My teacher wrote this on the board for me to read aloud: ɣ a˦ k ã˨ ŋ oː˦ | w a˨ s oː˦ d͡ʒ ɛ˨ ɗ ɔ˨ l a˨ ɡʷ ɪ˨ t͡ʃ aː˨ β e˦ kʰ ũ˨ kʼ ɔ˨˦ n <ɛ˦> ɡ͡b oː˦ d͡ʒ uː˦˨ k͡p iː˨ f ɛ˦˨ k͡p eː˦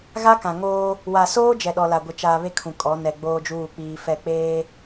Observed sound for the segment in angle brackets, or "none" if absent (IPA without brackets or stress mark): ɛ˨